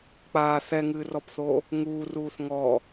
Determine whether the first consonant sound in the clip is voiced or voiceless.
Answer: voiceless